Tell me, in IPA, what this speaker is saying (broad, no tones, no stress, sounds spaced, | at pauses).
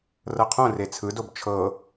r ɤ qʰ õ r e t͡sʰ ɯ d o b t͡ʃʰ ɤ